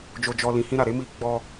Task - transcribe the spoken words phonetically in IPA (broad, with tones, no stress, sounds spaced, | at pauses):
d͡ʒ o˧ d͡ʒ ɔ˧ l ĩ˨ h ĩ˧ ɾ a˨ ɾ e˨˦ m i˧ ɡ͡b ɔ˧